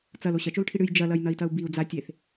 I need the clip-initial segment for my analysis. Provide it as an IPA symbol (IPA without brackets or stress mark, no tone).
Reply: t͡s